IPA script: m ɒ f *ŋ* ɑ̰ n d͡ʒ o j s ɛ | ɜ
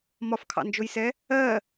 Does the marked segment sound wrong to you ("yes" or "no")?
yes